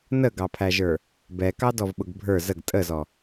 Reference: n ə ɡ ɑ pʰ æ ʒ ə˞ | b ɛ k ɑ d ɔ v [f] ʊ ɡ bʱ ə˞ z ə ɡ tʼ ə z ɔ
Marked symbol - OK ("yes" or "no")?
no